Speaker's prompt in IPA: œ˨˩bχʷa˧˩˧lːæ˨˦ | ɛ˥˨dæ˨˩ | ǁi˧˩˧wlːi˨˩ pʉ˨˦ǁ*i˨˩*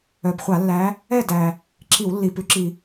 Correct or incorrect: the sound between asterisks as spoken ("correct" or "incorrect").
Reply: correct